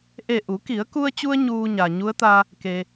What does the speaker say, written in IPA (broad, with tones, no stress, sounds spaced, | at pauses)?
ʔ e˧˩ ʔ u˩˧ k i˩˧ ə̯ k u˧ ə̯ t͡ɕ u˧ ə̯ ɲ uː˧ ɲ a˩ ɲ u˧˥ ə̯ t̪ a˧ | k e˩